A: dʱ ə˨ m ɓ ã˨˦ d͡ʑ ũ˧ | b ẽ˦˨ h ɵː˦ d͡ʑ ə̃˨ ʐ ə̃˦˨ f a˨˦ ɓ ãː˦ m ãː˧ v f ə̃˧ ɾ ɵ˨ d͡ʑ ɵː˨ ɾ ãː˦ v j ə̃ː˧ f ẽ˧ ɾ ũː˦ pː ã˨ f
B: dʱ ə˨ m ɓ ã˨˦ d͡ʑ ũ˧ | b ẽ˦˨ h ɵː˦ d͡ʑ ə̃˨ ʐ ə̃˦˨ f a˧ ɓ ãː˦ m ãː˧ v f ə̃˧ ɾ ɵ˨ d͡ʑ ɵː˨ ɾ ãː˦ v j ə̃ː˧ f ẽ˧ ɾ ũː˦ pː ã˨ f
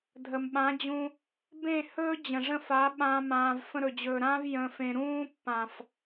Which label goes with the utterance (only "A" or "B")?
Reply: A